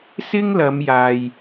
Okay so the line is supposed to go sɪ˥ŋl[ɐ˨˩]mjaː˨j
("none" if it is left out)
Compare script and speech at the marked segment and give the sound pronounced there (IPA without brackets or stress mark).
ɐ˨˧